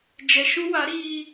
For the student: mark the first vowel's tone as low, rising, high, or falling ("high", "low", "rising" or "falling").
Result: low